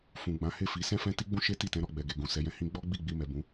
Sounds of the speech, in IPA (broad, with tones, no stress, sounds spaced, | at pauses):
f ũ˨ ɡ͡b ã˨˦ h e˦˨ f i˨˦ s ɛ̃˧ f ɛ̃˧ t i˧ ɡ͡b ũ˧ ʃ e˦ t i˦˨ t ɛ̃˨˦ ɾ ɔ˦˨ ɡ͡b ɛ˨ ɡ e˨ ɡ ũ˨ s ɛ˧ j ɛ̃˧ h ĩ˧ ɡ͡b ɔ˦ ɡ͡b i˦˨ ɡ͡b i˧ m ɛ˨ b ũ˨˦